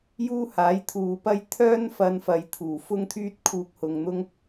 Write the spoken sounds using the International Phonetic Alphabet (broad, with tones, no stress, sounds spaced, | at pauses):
j uː˥ h aː˨˥ j t̪ʰ uː˨ p ɐ˥ j t̪ʰ œː˥ n f ɐ˧ n f ɐ˨ j t̪ʰ uː˨˩ f ʊ˥ ŋ t̪ʰ yː˥ t̚ kʰ uː˧ k̚ h ʊ˨ ŋ n̪ ʊ˥ ŋ